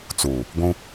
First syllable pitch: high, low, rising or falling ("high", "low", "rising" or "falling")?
low